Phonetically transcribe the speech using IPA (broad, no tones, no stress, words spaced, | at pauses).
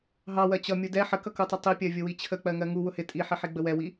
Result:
ɦɑwɜ t͡ɕʌ mʲudɛ ħəkʌkutˤʌ tˤipʲɜ vʲʊwit͡ɕʰə k͡pɜŋɜŋu wʊhɪ tʼiħɪħi ɡ͡bəwɛwi